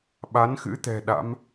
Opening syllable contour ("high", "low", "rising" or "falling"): rising